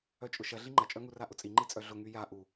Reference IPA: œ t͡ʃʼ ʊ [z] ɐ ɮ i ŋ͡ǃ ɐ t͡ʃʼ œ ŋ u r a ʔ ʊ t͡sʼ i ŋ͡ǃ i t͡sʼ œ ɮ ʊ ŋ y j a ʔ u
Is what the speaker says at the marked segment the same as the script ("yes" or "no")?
no